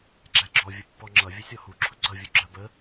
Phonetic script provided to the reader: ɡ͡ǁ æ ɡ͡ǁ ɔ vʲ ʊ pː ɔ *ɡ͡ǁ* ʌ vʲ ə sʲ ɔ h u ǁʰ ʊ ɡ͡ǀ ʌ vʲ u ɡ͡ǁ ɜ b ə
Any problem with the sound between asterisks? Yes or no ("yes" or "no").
yes